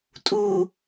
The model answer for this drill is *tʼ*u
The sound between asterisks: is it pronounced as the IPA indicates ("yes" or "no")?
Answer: yes